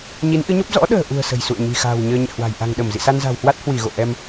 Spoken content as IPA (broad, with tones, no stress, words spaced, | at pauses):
ɲi˨˦nʔɨ˨˦ɲo˦˥p̚ zɔ̰˧˥ɗə̤ː˨˩ʔṳ˨˩ə̯ sə̤˨˩jsṵ˧˨ə̯ ɲi̤˨˩xa̤ː˨˩w ɲəː˧ɲɛ̰˧˨hwa̤˨˩j ʔa̤˨˩ŋɗə˧˩m zḭ˧˨sa˧nza̤˨˩whwa˦˥t̚ hwi˧˩ɣo̰˧˨ ʔɛ˧m